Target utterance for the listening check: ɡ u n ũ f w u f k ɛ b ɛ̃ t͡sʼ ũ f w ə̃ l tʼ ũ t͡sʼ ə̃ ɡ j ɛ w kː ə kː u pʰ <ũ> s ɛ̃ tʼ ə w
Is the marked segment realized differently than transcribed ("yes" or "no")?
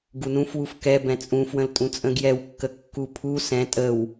yes